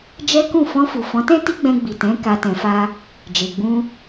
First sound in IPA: d͡ʒ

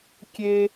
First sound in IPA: kʲ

